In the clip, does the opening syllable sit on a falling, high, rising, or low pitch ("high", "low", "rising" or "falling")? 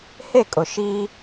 falling